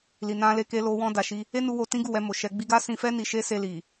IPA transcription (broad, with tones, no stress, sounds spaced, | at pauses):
l i˨ n ã˧ l e˧ k e˧ l o˧ w ɔ̃˧ d a˨ ʃ i˧ | e˦ n u˧ w o˧ t ĩ˦ ɡ u˦˨ w ɛ˧ m o˨ ʃ ɛ˧ ɡ͡b i˦ ɡ a˦ s ĩ˧ f ɛ˦ n i˧ ʃ e˦ s e˧ l i˨